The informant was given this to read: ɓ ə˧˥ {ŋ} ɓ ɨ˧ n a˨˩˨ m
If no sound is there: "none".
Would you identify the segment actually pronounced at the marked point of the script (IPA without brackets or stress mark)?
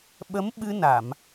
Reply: m